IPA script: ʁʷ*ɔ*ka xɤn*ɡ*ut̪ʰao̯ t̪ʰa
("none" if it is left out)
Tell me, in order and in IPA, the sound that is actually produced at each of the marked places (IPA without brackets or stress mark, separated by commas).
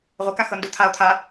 ə, d